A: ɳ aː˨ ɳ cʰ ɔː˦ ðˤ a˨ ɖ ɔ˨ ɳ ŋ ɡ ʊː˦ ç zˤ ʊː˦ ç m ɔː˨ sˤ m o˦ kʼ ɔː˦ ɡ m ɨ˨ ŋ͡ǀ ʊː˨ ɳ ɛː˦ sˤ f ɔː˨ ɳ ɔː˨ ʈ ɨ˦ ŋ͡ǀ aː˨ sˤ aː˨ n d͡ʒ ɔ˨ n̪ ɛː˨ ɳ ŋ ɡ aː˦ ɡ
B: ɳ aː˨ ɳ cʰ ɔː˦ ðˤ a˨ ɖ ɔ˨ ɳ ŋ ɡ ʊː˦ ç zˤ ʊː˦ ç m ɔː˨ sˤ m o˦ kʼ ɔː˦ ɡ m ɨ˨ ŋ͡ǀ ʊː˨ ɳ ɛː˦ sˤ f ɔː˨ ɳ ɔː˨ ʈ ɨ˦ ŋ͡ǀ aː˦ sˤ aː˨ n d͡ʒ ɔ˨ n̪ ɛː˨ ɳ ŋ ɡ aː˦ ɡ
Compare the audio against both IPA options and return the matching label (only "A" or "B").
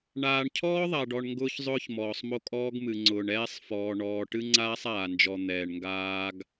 B